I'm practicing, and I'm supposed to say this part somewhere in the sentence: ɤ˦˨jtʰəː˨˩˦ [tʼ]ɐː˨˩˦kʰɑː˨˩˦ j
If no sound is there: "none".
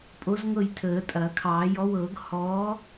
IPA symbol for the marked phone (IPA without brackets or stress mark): tʼ